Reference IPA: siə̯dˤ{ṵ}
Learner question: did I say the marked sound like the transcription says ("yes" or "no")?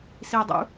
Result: yes